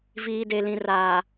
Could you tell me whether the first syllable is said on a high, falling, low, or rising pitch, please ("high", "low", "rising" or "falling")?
low